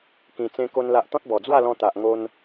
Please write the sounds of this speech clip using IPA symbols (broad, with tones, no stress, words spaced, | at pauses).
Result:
kĩ˧t͡sẽ˦ko˦nla˦ʔ t̪ɔ̃˦t̚bɔ˨˩d͡zwa˥˧lɔ̃˧ t̪a˨ʔŋo˧n